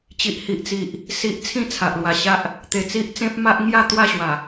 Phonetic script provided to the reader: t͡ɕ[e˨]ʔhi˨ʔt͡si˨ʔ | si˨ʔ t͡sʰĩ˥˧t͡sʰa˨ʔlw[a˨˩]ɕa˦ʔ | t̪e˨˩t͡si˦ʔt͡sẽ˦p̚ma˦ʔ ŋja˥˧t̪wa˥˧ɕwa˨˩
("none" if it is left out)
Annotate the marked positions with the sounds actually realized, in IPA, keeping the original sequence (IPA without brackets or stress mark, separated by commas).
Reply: i˨, a˨˩